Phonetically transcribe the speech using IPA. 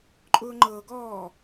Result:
ǃʼ ʊː ŋ͡ǃ ɤː ɡ ɔː

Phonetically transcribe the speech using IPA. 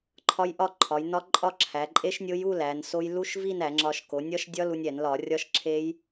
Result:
ǃʰ ɒ˦˥ j ʔ ɒ˥˧ ǃʰ ɒ˩˧ j n ɒ˦˥ ǃʼ ɒ˥˧ ǁʰ æ˩˧ ǃʼ e˦˥ ʃ nʲ o˦˥ j u˥˧ l æ˩˧ n s o˦˥ j l u˦˥ ʃ v i˥˧ n æ˧˩˧ ŋ͡ǁ ɒ˧ ʃ k o˩˧ nʲ ɒ˦˥ ʃ dʲ ɒ˦˥ l u˧ nʲ æ˧˩˧ n l ɒ˧˩˧ rʲ ɒ˦˥ ʃ ǁʰ e˦˥ j

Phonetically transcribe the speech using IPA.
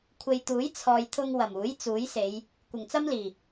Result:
kʷʰ e˨ j t̪ uː˨˥ j t͡sʰ ɔː˨ j t̪ʰ ʊ˧ ŋ w ɐ˨˩ m uː˨˥ j t͡s uː˨˥ j s e˨˧ j | kʷ ɪ˨˩ ŋ t͡s ɐ˥ m l iː˨˩

